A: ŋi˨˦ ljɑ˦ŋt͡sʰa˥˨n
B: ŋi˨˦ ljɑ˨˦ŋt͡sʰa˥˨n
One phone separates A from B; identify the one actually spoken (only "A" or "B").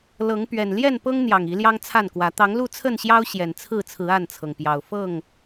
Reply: A